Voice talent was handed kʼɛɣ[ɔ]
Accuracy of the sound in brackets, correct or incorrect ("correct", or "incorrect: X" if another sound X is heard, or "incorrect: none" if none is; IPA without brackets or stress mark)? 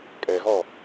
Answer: correct